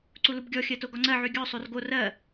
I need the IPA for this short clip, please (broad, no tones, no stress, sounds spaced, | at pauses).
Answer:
ǀ u l u b ɡʲ ɔ xʲ ɜ t o ɡ ɔ ŋ͡ǀ ɜ ʕ y ɡʲ ɔ sˤ o r ɡ o r ɜ